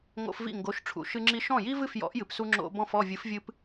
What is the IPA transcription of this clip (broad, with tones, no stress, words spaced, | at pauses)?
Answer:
ŋo̰˧fvḭ˥˩ ŋɡo˩˥ʃʈ͡ʂʰṵ˩ ʃɨ˧ŋ͡ǁi˧ ʃɔ̃˥˩ji˥vɨ˥˩fjɔ̰˩˥ʔ jɨ˩psu˧ ŋ͡ǁo̰˧ bɔ̃˥˩fɔ˥˩ vʲɨ˩˥fvʲɨ˧p